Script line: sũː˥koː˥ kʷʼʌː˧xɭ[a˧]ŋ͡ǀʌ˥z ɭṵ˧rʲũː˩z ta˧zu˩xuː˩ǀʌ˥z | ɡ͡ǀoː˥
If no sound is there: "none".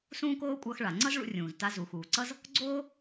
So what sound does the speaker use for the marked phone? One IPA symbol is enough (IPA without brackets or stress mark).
a˩